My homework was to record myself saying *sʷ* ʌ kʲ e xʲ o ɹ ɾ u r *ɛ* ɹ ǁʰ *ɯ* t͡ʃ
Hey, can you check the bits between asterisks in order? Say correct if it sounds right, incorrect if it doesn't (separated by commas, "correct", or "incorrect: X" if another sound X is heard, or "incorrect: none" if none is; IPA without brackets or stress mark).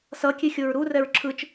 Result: incorrect: s, correct, correct